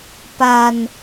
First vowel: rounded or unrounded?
unrounded